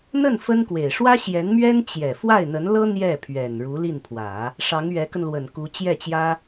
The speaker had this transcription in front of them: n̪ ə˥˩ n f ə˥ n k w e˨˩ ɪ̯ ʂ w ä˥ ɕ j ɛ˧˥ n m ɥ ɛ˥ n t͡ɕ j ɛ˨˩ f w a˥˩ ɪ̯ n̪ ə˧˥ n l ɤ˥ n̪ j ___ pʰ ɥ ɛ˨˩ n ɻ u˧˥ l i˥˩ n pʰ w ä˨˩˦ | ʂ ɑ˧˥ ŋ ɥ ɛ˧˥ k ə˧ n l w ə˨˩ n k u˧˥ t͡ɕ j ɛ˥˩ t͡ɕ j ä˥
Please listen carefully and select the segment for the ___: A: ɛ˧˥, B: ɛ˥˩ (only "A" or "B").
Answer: B